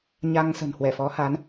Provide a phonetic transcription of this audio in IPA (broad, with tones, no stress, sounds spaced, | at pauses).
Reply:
ɲ a˧ ŋ s ə̤˨˩ n h w ɛ˧˩ f ɔ˨˦ h a˨˦ n